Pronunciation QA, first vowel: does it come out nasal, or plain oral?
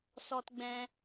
oral